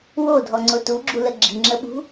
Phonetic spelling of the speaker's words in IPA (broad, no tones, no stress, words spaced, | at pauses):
wodʱɔŋ͡ǀʊ tuɡ͡ǁulə ɡ͡ǁiŋ͡ǁəɓṳ